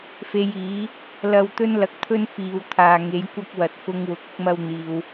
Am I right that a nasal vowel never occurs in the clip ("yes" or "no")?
yes